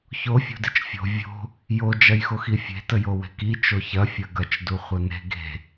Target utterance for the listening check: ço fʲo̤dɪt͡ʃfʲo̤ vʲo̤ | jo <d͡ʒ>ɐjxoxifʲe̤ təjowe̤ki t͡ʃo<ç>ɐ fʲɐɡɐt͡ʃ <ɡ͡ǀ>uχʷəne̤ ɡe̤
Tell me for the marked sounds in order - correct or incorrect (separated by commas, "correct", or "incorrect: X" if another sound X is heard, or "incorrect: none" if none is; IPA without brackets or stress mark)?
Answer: correct, correct, incorrect: d